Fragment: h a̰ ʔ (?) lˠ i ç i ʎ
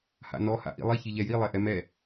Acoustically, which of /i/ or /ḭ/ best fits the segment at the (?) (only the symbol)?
ḭ